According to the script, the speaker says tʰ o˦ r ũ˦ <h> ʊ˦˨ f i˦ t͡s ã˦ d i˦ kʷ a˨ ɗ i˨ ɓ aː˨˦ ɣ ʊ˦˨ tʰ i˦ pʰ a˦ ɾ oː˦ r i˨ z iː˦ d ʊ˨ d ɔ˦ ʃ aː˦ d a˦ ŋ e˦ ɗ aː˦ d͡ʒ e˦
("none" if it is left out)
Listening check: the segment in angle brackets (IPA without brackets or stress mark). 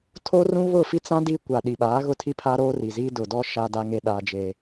β